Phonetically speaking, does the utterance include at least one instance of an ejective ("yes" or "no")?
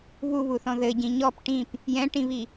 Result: no